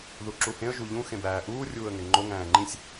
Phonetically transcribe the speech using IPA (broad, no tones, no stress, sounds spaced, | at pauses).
ð u ǁ u h ẽ ə̯ ʒ u ʎ ũ x ẽ b æː ʔ uː rʲ uː ə̯ ŋ e ŋ͡ǃ o ŋ æ̃ː ŋ͡ǃ ĩ sʲ